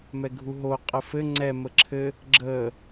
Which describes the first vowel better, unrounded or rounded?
unrounded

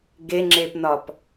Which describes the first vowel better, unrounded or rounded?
unrounded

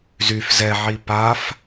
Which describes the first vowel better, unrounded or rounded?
rounded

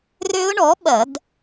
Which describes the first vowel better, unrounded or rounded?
rounded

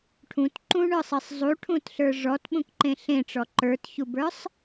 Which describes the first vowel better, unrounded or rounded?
rounded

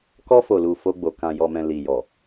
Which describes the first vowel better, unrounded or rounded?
rounded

